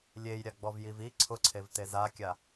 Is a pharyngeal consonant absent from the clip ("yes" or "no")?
yes